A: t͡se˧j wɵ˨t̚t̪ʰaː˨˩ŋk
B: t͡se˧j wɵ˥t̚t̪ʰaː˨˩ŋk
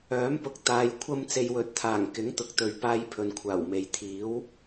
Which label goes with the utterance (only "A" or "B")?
A